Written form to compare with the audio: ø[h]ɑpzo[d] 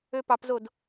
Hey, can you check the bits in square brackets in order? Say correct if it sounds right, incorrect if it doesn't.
incorrect, correct

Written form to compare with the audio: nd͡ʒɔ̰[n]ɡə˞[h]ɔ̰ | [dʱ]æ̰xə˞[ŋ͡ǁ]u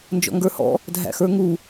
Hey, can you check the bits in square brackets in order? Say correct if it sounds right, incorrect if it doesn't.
incorrect, correct, correct, incorrect

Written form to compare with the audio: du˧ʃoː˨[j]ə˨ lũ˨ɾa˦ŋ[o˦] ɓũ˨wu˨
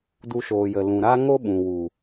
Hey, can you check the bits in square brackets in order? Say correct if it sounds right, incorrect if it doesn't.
correct, correct

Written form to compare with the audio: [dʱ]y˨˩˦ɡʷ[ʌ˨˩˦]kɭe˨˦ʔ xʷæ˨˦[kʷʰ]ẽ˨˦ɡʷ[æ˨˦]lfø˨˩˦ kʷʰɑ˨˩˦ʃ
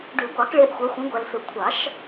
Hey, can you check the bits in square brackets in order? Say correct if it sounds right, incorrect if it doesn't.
incorrect, incorrect, incorrect, incorrect

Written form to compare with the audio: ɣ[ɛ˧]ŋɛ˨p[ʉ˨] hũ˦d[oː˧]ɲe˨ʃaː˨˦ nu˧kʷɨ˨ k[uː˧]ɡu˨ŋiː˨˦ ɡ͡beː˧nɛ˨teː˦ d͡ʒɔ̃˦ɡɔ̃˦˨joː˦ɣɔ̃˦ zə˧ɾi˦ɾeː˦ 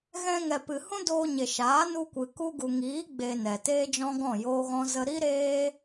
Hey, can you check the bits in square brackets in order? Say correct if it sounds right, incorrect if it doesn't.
incorrect, incorrect, correct, incorrect

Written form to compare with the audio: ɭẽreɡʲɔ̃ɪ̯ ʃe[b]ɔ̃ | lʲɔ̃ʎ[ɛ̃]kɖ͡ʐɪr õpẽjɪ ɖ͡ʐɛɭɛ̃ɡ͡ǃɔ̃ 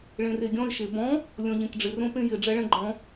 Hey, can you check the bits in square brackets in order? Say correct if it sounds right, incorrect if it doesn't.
correct, incorrect

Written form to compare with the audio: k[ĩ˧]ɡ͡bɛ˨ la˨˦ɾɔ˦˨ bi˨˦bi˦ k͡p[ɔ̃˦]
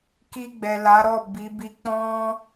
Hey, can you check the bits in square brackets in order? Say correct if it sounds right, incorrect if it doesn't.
incorrect, correct

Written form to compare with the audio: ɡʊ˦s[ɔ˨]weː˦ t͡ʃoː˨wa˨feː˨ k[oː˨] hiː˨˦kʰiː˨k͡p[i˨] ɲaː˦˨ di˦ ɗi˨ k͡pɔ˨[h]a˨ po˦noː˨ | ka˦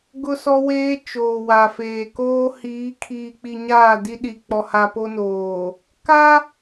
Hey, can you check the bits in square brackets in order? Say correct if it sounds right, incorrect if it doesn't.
incorrect, incorrect, correct, correct

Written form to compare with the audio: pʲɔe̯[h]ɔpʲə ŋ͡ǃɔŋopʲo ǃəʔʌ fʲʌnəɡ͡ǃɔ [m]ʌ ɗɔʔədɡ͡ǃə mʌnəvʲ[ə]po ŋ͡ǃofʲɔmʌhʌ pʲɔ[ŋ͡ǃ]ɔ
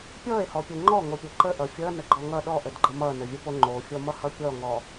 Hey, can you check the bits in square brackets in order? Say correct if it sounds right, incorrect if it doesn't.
correct, incorrect, correct, incorrect

